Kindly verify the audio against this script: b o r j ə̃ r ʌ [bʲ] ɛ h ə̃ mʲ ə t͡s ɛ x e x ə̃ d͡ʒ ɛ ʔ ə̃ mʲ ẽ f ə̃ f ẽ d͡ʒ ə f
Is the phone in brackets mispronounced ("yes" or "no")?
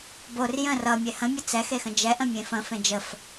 yes